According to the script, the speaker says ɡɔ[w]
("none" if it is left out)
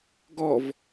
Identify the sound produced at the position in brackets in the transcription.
v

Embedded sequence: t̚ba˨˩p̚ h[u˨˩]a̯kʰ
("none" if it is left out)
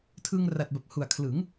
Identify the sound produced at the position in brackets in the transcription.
u˨˩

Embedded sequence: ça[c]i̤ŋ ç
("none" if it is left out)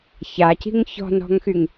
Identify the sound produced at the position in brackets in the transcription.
c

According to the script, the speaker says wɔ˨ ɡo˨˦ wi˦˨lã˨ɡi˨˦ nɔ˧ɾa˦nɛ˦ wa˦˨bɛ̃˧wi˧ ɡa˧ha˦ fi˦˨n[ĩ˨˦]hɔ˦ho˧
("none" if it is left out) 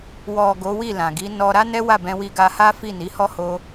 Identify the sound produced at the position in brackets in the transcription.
i˨˦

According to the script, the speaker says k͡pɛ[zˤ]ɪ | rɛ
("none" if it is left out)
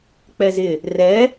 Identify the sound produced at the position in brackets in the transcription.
z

